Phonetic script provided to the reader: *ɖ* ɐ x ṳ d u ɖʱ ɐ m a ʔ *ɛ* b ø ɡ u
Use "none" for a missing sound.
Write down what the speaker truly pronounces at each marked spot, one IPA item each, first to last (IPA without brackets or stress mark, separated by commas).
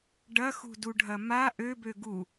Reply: ɖ, ø